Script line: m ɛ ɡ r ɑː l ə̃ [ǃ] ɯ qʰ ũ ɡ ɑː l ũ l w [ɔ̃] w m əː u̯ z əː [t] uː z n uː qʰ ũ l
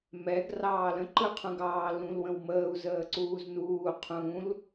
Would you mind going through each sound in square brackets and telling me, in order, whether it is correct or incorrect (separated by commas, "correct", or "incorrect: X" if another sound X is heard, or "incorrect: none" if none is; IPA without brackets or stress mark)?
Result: correct, incorrect: ə̃, incorrect: ǀ